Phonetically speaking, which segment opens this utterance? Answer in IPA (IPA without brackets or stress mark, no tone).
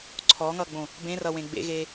ǀʰ